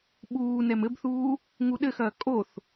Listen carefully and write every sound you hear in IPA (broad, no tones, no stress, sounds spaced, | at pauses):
ɓ uː n ɛ m ɘ b θ uː | ŋ u ɗ ɘ x ɐː kʼ o θ